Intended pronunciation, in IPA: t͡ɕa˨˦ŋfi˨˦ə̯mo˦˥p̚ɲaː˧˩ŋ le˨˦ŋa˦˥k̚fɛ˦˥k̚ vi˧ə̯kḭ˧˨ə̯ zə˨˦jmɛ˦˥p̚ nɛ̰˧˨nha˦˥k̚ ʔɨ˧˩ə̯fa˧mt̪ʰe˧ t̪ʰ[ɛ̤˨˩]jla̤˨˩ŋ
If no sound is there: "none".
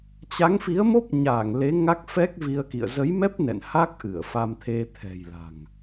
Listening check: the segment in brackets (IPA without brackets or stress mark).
ɛ̤˨˩